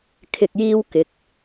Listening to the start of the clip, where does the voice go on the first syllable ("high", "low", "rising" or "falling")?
low